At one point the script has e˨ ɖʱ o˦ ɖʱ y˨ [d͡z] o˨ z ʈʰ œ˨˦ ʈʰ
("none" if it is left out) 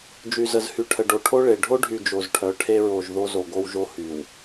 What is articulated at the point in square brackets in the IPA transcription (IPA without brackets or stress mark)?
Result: d͡ʒ